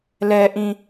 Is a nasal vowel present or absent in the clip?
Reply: present